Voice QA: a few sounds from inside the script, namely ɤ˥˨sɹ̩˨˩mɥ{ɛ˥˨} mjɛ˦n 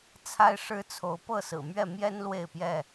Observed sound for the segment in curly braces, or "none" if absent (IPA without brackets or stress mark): ɛ˥˨